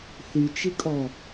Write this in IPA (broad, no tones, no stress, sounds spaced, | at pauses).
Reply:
θ y t͡ʃ i kʼ ɔ